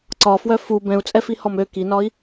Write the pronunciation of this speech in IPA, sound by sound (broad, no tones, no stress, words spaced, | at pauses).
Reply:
ǀɒfwœ fu bɛ̃u̯t͡sʼɛfihɔm ø kinɒi̯